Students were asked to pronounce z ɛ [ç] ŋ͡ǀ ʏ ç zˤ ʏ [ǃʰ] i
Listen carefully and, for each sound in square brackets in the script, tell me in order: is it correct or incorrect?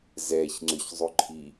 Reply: correct, correct

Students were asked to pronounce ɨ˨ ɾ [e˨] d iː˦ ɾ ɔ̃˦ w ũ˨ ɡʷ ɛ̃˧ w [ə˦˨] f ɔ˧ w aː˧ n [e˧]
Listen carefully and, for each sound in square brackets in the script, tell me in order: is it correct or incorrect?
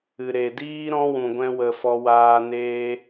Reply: correct, incorrect, incorrect

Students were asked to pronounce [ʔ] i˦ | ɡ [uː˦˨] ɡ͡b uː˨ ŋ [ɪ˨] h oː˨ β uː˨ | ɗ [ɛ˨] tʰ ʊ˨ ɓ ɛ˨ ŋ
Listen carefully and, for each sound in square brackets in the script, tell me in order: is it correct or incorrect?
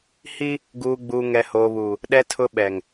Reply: incorrect, incorrect, incorrect, correct

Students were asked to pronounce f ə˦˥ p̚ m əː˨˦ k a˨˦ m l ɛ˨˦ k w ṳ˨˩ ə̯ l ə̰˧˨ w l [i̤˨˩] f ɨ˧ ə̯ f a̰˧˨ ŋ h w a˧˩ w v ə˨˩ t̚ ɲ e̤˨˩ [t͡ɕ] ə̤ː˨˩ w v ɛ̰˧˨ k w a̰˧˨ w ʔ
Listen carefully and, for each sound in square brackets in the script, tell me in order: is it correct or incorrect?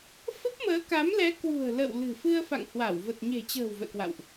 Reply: incorrect, correct

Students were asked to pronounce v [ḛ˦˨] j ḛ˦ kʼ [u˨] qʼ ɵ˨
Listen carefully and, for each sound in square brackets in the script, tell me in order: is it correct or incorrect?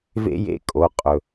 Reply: incorrect, incorrect

